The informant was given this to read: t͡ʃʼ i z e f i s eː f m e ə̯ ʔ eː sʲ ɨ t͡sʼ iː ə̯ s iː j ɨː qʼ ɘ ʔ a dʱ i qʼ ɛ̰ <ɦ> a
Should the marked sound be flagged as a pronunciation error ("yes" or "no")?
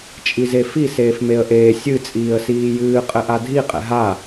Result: no